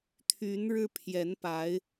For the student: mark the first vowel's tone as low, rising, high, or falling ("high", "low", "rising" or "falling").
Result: rising